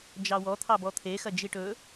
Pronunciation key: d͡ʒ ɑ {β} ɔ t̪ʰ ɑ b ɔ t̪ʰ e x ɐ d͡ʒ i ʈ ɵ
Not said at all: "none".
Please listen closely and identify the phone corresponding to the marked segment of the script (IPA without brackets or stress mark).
w